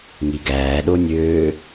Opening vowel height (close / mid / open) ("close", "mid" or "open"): close